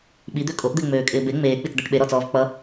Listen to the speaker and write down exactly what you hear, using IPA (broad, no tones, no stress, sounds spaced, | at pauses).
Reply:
ɓ i d̪ ø kʼ o ʔ d̪ e ŋ͡m øː kʼ ɪː b e ŋ͡m eː k͡p i t͡s d̪ a ʈ ɓ e ɾ ɔ t͡s ɔː v k͡p ʌ